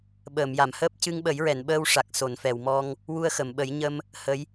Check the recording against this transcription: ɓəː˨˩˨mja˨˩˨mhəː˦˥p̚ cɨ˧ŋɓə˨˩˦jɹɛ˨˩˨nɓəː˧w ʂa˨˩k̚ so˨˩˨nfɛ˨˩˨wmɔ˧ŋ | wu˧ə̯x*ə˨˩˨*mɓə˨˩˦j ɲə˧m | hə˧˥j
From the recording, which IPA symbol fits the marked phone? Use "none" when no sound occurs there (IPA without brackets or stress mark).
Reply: ə˨˩˨